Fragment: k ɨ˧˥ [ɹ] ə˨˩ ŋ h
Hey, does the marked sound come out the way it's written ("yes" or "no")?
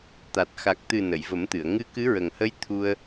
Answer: yes